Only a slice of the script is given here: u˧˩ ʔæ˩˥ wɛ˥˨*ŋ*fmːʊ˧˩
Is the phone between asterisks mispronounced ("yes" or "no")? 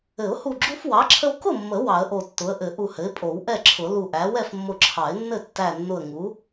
yes